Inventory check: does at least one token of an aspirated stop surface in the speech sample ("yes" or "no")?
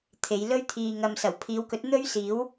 yes